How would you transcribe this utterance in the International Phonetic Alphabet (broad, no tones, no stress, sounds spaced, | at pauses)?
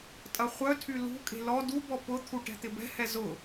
tʼ ɐ χʷ œ tʰ y l ṳ kʼ e̤ l ɔ d u b ɔ p ʊ t̪ʰ u ʈ ɛ̤ t̪ ɪ b ɛ̤ h ɛ z ʊ